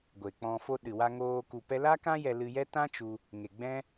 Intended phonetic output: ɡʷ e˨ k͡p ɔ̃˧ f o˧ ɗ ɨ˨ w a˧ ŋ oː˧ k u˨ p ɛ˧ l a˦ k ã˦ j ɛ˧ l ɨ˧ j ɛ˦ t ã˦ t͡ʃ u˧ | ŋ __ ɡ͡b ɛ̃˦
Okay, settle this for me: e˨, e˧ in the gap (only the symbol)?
e˨